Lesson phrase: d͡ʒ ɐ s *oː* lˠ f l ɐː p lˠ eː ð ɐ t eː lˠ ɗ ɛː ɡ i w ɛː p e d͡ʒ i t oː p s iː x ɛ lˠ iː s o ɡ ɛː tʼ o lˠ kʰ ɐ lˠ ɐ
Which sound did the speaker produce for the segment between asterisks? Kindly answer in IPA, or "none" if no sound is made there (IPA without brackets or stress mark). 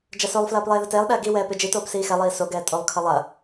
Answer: o